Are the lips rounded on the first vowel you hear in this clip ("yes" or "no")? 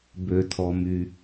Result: yes